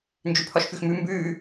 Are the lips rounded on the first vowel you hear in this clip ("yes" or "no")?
yes